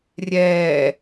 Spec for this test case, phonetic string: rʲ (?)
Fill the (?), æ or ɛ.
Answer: ɛ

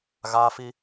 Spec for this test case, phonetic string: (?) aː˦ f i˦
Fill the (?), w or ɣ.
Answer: ɣ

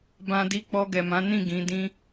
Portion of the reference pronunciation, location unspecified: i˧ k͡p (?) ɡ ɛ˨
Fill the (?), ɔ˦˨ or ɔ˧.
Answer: ɔ˧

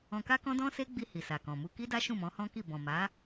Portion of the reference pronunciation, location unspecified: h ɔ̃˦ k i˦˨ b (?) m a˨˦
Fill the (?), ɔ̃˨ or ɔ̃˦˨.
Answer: ɔ̃˨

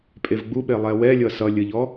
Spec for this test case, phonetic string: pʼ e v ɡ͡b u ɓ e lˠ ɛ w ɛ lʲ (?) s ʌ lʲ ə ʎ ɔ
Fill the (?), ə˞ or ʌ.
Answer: ʌ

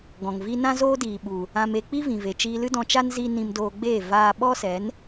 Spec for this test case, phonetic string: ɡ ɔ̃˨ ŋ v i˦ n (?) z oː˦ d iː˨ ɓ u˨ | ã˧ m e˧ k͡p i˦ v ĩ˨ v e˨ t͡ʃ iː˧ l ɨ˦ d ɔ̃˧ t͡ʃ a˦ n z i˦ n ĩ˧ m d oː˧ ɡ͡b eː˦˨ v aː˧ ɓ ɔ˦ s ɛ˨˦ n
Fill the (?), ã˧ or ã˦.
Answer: ã˦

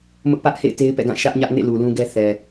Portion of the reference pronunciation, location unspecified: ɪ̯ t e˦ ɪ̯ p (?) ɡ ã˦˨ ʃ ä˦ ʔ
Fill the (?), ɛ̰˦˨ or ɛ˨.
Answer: ɛ̰˦˨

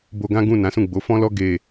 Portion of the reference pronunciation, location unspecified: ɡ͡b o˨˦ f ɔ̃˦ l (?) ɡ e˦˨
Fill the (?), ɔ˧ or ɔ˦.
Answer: ɔ˦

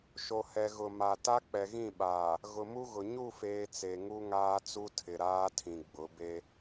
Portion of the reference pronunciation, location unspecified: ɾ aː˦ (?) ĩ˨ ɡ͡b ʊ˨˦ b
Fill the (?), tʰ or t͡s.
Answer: tʰ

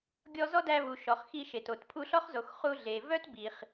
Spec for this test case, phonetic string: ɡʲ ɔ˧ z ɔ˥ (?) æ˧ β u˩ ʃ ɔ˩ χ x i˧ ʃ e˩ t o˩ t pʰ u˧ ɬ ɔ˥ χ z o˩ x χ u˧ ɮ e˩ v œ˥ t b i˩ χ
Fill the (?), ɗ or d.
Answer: d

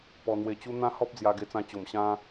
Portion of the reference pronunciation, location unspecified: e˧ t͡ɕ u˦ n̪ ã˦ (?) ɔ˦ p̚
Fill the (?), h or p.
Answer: h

